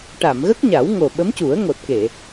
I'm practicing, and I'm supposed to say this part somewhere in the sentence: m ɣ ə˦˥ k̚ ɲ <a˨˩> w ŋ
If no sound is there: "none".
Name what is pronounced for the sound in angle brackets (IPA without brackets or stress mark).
a˨˩˦